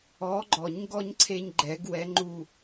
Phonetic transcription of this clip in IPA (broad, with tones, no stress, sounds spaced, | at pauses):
ɔ˨˦ ɡ͡ǃ ɔ˨˩˦ ɲ ɡ ɔ˦ ɲ ǀʰ e˦ ɲ ɡ͡ǃ ɛ˨˩˦ ɡ w ɛ˨˦ ŋ͡ǃ u˧˩